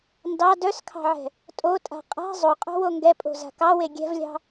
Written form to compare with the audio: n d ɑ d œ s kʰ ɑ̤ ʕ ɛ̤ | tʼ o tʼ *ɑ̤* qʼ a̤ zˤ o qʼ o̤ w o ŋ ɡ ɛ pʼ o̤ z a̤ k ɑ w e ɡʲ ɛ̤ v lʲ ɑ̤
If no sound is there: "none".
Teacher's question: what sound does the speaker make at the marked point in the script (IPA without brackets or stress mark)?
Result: a̤